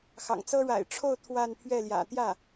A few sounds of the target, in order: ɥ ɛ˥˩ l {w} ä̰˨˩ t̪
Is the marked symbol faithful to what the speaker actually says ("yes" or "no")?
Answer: no